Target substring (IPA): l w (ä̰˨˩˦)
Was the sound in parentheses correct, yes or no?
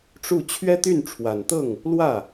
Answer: no